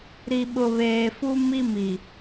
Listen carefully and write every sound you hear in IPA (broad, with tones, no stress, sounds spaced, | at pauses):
ɾ i˨ ɓ ʊ˨ β eː˨ f u˦ m i˦ m i˨